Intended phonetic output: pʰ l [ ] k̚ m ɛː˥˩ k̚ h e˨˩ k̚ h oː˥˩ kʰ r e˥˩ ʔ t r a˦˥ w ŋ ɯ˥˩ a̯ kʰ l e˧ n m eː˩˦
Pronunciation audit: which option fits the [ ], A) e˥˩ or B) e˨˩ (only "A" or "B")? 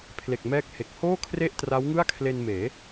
B